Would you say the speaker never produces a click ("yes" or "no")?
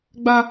yes